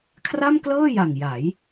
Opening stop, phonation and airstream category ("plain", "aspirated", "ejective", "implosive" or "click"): aspirated